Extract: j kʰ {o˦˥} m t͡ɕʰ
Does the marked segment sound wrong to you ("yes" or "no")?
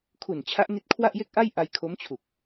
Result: no